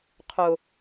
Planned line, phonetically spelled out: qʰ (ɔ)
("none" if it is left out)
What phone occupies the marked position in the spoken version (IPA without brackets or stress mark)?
o